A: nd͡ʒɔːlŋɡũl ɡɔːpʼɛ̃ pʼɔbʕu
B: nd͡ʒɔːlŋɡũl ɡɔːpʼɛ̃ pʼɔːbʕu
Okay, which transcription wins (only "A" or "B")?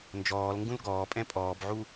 B